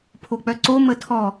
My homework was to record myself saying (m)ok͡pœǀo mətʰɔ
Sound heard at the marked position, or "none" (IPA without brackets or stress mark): pʰ